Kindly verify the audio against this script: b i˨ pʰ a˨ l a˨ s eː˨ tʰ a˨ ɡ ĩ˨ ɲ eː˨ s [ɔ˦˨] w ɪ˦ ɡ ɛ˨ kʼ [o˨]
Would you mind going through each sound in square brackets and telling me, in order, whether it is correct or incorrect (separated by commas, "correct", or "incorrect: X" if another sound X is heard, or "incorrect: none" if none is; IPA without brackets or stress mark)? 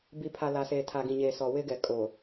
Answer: incorrect: ɔ˨, correct